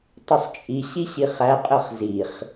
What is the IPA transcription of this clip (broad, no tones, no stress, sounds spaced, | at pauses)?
tˤ u sˤ t͡ʃʼ i ɕ i ɕ i χ æ qʼ ə χ z i χ